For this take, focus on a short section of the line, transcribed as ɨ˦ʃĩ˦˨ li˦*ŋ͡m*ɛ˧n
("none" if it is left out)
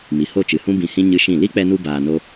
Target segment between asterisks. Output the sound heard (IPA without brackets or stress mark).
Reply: k͡p